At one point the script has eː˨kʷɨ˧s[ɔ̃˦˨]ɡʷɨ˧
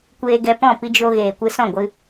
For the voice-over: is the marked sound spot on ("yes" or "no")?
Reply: yes